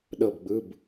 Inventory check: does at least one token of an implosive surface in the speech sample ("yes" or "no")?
yes